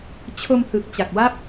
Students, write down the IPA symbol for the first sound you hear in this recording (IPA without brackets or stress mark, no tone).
t͡ɕʰ